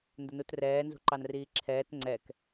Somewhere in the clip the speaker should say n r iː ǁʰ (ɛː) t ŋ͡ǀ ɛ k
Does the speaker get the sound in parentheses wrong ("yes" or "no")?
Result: no